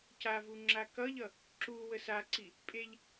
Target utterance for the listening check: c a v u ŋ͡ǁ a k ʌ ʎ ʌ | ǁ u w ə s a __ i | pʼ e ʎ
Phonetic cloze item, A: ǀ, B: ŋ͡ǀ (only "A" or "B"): A